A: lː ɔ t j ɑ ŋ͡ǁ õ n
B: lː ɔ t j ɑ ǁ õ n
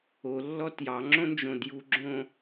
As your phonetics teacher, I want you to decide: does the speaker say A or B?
A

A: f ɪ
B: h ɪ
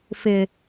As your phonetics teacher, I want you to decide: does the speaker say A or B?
A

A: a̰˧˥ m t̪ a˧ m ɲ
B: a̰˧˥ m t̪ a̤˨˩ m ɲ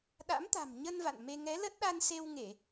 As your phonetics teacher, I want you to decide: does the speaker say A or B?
B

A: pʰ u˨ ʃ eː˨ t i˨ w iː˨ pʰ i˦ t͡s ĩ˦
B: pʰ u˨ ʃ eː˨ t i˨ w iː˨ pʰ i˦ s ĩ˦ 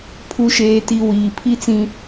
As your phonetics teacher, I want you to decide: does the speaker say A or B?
A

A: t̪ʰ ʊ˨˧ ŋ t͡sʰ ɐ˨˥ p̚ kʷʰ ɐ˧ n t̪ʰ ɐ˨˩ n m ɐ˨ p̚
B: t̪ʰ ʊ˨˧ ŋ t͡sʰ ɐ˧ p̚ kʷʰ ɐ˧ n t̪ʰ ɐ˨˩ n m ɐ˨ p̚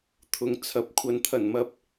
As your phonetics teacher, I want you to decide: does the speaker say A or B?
A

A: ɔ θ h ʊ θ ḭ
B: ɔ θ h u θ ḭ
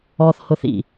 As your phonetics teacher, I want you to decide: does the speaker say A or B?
A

